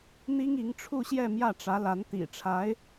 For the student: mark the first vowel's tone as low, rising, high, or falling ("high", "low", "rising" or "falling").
high